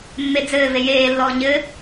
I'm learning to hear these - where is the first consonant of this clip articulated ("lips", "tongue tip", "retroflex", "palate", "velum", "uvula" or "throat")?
lips